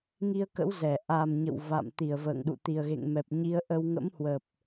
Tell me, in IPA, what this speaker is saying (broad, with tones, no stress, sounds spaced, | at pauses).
ŋ i˧ ə̯ k ə̰˧˥ w z ɛ˧˩ ʔ a˨˩ m ɲ ə̰˧˨ w v a̰˧˨ m t̪ i˧˩ ə̯ v ə̰ː˧˨ ŋ ɗ ṵ˧˨ t̪ i˨˩ ə̯ ɣ ḛ˧˨ ŋ m ɛ˨˩ p̚ ɲ i˨˦ ə̯ ʔ ə˧ w ŋ ə̰˧˥ m h w ə˨˩ p̚